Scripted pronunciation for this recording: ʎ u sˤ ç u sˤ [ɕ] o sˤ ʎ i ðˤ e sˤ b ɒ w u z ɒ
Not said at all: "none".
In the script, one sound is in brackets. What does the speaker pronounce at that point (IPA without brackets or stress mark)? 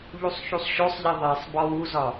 ɕ